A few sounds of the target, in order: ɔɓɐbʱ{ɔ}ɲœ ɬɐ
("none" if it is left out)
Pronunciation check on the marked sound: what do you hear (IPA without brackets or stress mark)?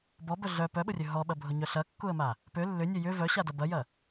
ʊ